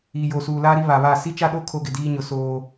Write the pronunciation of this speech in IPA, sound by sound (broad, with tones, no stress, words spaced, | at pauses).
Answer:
iː˨jo˨suː˨ laː˦ɾi˦ βa˨βa˦˨ si˦t͡ʃa˦ɗo˦ kʰo˦ɡɪ˨diː˦ɲʊ˨˦ soː˦